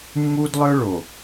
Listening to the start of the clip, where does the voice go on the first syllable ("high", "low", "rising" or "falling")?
high